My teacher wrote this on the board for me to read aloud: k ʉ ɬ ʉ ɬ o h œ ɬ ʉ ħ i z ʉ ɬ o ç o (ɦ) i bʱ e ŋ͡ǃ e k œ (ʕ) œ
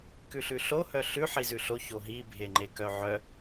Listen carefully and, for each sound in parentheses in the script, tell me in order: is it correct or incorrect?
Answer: correct, correct

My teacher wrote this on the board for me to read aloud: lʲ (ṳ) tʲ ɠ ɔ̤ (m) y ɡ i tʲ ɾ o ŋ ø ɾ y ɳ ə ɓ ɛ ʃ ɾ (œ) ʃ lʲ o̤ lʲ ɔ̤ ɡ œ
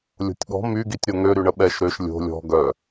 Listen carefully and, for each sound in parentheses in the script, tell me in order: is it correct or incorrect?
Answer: incorrect, correct, incorrect

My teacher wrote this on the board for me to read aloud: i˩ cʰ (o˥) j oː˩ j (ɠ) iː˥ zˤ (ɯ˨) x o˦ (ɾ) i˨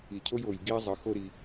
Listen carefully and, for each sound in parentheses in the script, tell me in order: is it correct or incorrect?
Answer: correct, incorrect, correct, correct

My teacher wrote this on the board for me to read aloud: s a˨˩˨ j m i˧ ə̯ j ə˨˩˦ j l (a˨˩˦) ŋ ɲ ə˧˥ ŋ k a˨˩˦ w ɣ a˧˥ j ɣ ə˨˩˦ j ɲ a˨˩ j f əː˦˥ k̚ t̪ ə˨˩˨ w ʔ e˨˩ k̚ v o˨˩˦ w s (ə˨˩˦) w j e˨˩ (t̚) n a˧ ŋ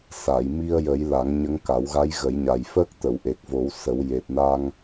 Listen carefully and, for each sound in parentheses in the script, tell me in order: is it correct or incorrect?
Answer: correct, correct, correct

